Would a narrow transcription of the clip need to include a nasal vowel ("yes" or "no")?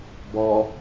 no